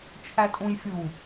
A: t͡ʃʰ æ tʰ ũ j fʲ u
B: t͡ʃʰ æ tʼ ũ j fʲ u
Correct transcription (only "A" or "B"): B